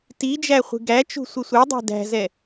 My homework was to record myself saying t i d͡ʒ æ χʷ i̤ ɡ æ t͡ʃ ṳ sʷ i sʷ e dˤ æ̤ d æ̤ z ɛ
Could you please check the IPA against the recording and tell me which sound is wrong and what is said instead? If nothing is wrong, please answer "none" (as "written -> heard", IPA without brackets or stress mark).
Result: none